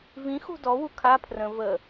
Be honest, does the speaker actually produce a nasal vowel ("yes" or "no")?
yes